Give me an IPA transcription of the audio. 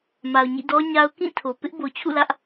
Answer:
m a˨ ʊ̯ ɲ ḭ˦˨ d ɔ˦ ɲ a˦ ʊ̯ k ĩ˦˨ tʰ o˨ p ɪ˦ ʔ b o˨ t͡ɕʰ ṵ˦˨ l ä˦ ʔ

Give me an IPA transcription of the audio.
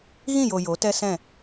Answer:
ɣ ĩ˦˨ j o˨ j o˨˦ t ɛ˦ s ɛ̃˦˨

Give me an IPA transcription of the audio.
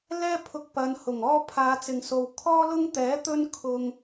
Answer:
l ɛː˥ pʰ ʊ˧ k̚ p ɐ˨˧ n h ʊ˨˩ ŋ ɔː˥ pʰ aː˨˧ t͡s ɪ˨ ŋ s o˨ w kʰ ɔː˥ l ʊ˥ ŋ t̪ ɛː˨˥ t̪ ɵ˥ n kʰ ʊ˧ ŋ

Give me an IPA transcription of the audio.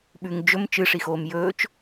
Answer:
ɓ ʉ ŋ d͡ʒ ɵ m t͡ʃ ɨ ʂ i x oː m j ɵː t͡ʃ

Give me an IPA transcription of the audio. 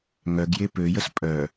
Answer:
ŋ œ ɡ j e p ø j ə s pʼ œ

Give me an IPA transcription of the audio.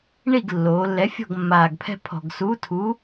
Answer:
ɳ i˥˩ ɡ lː oː˩˧ lː ɛ˨˥ fʲ ɔ̤˥˩ ɡ mː aː˨˩ ɡ pʰ ɛ̤˦ pʰ ɔ̤˨˩ ɡ s uː˨˥ tʰ u˨˥

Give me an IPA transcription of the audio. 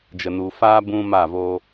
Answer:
d͡ʒ ə˨ n u˨ f aː˦ b ũ˦ m a˦˨ v o˦

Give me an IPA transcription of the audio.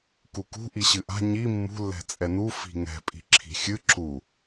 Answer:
k u k ṳ ʔ i ɕ ɨ ʔ a̤ ɲ i mː ṳ lː ɛ̤ t͡sʼ ɛ n u f i̤ ŋ ɛ̤ pʼ i̤ ǁʰ i̤ xʲ ɨ ǁ u

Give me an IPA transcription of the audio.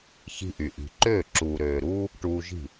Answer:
ç i̤˧ ʔ y˩ ʔ i̤˩ ǃ øː˥˩ ǁ uː˩ ɾ øː˩ ɾ uː˥ | ʈ uː˧ ʒ i̤˥˩

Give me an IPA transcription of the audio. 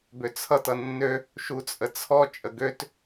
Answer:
b ø t͡sʰ ʌ t ʌ nː ø | ʃ u t͡sʼ ə t͡sʰ ɔ t͡ʃʼ ə ɡ ø t

